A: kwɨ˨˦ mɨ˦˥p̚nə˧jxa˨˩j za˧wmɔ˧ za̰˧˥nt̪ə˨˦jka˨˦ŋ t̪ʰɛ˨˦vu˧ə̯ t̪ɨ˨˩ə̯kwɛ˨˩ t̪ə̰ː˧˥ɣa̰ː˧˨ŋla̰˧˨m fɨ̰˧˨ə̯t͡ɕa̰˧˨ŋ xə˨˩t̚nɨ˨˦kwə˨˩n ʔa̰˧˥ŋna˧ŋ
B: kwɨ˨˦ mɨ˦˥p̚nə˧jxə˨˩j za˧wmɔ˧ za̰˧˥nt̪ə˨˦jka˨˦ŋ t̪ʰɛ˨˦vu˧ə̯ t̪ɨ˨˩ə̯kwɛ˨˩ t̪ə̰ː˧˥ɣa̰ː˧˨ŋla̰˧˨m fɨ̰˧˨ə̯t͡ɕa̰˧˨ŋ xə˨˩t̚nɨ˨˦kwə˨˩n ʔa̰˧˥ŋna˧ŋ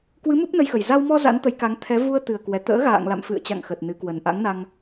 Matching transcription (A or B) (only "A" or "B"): B